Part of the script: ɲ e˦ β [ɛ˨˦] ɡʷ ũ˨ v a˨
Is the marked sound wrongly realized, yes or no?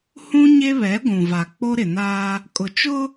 no